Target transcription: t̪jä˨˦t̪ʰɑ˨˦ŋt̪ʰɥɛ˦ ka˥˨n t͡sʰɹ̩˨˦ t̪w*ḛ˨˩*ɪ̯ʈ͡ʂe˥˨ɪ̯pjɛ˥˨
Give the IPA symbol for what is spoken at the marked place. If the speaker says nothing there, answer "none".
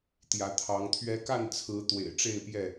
ḛ˨˩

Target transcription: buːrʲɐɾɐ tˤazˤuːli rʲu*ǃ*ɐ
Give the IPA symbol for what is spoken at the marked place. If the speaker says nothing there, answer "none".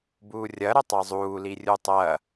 tˤ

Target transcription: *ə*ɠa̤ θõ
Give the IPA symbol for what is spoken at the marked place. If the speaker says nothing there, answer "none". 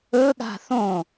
ɵ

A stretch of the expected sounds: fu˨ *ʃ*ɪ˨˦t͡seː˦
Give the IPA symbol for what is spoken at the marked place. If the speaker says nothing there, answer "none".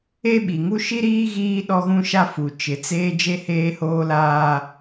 t͡ʃ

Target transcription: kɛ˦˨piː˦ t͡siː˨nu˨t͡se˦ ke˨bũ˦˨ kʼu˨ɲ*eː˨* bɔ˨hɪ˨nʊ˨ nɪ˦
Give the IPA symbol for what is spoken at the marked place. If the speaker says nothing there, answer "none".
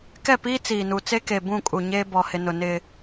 eː˦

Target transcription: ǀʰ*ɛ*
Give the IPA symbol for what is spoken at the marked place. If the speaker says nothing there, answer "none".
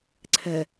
ɛ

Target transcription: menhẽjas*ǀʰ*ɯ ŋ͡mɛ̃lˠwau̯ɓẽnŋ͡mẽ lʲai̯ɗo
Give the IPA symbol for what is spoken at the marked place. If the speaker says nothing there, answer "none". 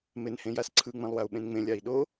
ǀʰ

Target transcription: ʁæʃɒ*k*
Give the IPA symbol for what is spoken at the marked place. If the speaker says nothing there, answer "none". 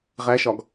ɡ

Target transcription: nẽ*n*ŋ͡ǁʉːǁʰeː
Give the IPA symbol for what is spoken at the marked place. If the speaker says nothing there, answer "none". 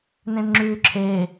n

